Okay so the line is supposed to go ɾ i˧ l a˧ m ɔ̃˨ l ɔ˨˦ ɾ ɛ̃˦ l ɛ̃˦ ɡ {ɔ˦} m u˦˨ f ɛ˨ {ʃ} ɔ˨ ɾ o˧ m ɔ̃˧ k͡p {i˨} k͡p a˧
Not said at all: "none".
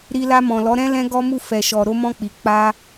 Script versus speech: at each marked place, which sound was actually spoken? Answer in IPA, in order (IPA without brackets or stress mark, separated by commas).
ɔ˦, ʃ, i˨